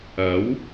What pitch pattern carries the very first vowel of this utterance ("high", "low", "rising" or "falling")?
rising